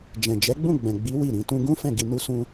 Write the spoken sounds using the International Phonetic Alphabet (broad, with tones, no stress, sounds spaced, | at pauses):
d͡ʒ ɛ̃˨ d͡ʒ ɛ˨˦ ɡ͡b ũ˦˨ ɡ͡b ɛ̃˨ ɡ͡b i˨˦ w i˦˨ ɾ ĩ˧ t ũ˧ ɡ ũ˦ f ɛ̃˦˨ ɡ i˧ n u˦ s ũ˧